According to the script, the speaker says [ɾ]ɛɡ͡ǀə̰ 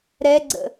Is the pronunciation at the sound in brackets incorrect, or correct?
correct